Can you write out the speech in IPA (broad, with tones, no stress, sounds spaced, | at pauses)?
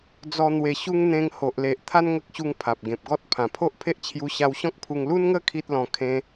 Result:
d͡z ɔ˧ n̪ w e˨˩ ɕ u˧ ŋ n̪ ẽ˧ ŋ h o˨ ʔ l e˨ ʔ t̪ʰ a˦ n ŋ ə˦ k̚ ɕ u˧ ŋ pʰ a˨ p̚ ɡ ẽ˨ p̚ ɡ ɔ˦ t̚ pʰ ã˨˩ pʰ o˦ ʔ pʰ e˦ ʔ t͡ɕʰ j u˧ ɕ a˧ w ɕ ɔ̃˦ k̚ pʰ u˧ ŋ l u˦ n ŋ ə˦ kʰ i˦ t̚ l ɔ̃˧ kʰ ẽ˧